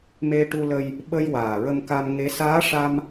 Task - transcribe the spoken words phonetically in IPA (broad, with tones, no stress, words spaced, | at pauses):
me˧ʈu˧lə˧j | ɓə˧j waː˨˩ɹə˧mka˧mŋe˧˥ saː˧˥ʂa˧m